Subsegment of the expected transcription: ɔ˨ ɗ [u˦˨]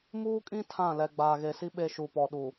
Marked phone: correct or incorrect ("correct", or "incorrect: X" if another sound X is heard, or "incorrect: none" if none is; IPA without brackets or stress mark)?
incorrect: u˨